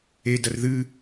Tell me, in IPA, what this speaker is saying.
e d ɐ r ð ɨ

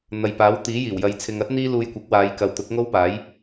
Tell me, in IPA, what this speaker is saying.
n̪ ɐ˨ j p aː˨˥ w t̪ iː˨˥ j iː˨˩ w j ɐ˨˧ j t͡sʰ ɪ˨ ŋ ɐ˥ t̚ n̪ iː˥ l uː˧ j kʷ ɐ˨˥ k̚ w aː˨˧ j k ɐ˨ w t̪ ʊ˨˥ k̚ ŋ o˥ w p aː˨˥ j

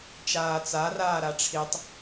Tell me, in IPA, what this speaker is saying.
t͡ʃ aː t͡s a r aː ɾ a ʈ͡ʂʰ i tˤ

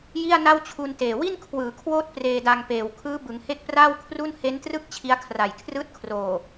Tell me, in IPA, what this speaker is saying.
j i˥˩ a̯ n a˥˩ w t͡ɕʰ u˧ n t eː˨˩ w i˥˩ n kʰ w ɯː˩˦ kʰ w oː˦˥ t̚ p r eː˧ d a˧ ŋ p eː˨˩ w kʰ ɯː˦˥ b ɯ˩˦ ŋ h e˥˩ k̚ p r aː˥˩ w kʰ r u˥˩ n h e˦˥ n t r ɯ˥˩ k̚ t͡ɕʰ i˦˥ a̯ kʰ r a˨˩ j kʰ r ɯː˥˩ t̚ kʰ r oː˨˩

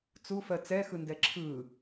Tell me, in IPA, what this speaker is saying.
t͡s u f ɜ t͡s ɛ x ɯ n d ɛ ǁʰ ɯ

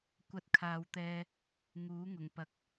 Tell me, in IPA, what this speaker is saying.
kʷ ɐ˧ t̚ kʰ aː˨˧ w t̪ ɛː˧ | ŋ uː˨˥ ŋ ʊ˨˩ ŋ p ɐ˨˥ k̚

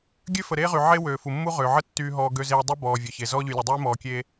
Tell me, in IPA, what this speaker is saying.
ɡʲ ø˦ f ə˨ ɾ eː˦ ʁ y˨ ʕ e˦ w øː˨ f u˨ mː u˦ ʁ øː˨ ʕ ə˦ tː yː˨ ɦ ɔː˨ ɡ ø˦ z eː˦ dˤ y˦ b ɔː˨ vʲ œ˨ ç e˨ z ɔː˦ ʎ y˨ lʲ e˨ dˤ yː˦ m ɔː˨ kʲ eː˦

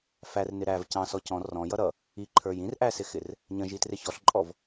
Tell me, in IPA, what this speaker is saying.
f æ r n ɪ ɾ æ v c ɑ̃ s ɔ c ɔ̃ r ɔ̃ j ʌ ɾ ʌ | i ǃʰ ə˞ j ĩ r ʔ æ s ɪ x ɪ r | ɲ ə̃ ʒ i t r ɪ ç ɔ ɬ ǃʼ ɔ v

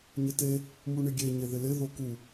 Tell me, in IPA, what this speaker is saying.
ɲ ɪ t e | m u ɳ ɪ ɡʲ e ɲ e ð ɪ l ɪ ð o k u

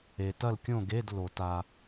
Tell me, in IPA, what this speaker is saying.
e˨ t ɐ˥˨ l kʲ õ˥˨ ɡ e˧˥˧ d l o˨˩˦ t a˨

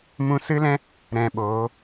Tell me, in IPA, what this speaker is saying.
m ũ˧ s ɨ˦ l ɛ̃˦ | ɾ ɛ̃˧ ɓ oː˨˦

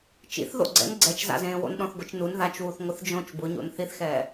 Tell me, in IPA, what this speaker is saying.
t͡ʃ ḭ θ ð o̰ ɡ͡ǀ ɛ̰ n ɡ͡ǀ ɛ t͡ʃ z a̰ z ẽː w o̰ n ɗ ɔ̃ θ ɡʷ ɪ t͡ʃ n u n ð a t͡ʃ w u θ ŋʷ ɪ θ d͡ʒ õ t͡ʃ b ʊ ɲ o̰ n θ i θ x ɛː

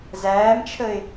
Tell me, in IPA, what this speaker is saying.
z æː m t͡ʃʰ ə ɪ̯

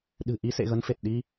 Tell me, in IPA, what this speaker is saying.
ɗ ɨ̤˨˩ ʔ i˨˦ s ḛ˧˨ ɣ ə˨˦ n f e˨˩ t̚ ɗ i˧

